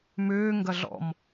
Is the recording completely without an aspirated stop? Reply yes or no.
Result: yes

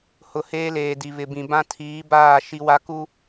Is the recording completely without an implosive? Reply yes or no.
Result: yes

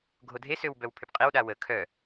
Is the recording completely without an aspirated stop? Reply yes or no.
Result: no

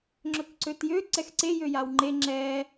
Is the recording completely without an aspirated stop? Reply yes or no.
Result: yes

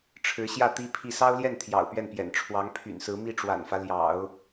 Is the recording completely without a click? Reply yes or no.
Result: yes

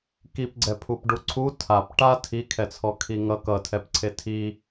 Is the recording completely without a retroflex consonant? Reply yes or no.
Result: no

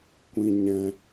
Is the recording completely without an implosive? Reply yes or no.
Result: yes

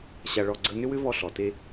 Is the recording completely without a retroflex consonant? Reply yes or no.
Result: no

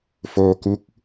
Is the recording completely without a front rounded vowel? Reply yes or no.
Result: yes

